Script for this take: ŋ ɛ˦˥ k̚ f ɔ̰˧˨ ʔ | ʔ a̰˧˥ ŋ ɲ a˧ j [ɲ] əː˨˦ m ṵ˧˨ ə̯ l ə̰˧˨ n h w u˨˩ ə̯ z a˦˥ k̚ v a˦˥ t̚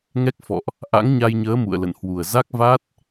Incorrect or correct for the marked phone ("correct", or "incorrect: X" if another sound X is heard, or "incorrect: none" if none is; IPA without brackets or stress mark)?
correct